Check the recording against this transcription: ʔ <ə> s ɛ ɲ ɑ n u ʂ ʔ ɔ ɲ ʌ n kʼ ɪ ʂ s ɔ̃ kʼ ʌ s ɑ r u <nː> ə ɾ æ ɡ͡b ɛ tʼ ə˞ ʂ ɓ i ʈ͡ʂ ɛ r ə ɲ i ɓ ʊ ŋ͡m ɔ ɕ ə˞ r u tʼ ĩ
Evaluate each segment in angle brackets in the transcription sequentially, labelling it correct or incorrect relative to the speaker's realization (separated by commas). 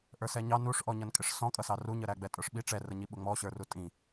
incorrect, incorrect